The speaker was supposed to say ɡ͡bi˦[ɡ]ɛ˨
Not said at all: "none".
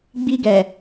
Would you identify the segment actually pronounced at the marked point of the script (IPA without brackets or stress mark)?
ɡ